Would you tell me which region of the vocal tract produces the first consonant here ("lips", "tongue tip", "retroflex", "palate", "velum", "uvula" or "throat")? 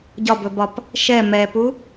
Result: palate